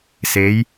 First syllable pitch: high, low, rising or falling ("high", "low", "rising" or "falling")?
rising